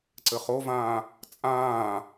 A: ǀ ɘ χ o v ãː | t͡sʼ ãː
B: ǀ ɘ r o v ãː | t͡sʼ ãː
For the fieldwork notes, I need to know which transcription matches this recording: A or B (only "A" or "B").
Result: A